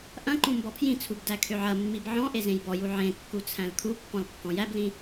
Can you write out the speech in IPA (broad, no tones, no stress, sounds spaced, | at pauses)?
ʔ ɐ̃ ǃ ũ m b ɔ pʰ j ĩ t͡sʰ u b d æ kʰ ø ʕ ɐ mː i b ʕ ɔ̃ ʔ e z ẽ j b ɔ j u ʕ ẽ kː u t͡sʰ æ̃ l kʰ u pː ɔ̃ l kː ɔ̃ j æ b l ĩ